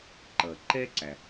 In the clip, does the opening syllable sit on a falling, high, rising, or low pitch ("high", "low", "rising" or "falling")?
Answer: low